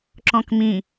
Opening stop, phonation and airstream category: click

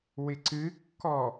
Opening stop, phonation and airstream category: click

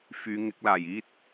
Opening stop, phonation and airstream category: plain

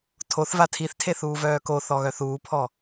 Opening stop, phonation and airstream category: aspirated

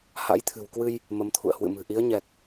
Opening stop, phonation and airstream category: aspirated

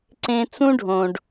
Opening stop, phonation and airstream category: click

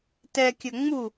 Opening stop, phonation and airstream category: plain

